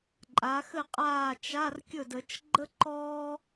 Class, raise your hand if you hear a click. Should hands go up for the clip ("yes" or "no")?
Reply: yes